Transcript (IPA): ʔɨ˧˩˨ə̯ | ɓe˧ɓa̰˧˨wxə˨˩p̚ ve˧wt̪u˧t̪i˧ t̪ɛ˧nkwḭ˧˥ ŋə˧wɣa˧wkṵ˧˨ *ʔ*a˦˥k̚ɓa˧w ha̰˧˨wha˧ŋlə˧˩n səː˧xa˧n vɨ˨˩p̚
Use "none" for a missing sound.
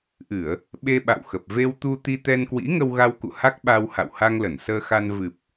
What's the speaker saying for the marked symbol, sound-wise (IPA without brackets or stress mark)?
h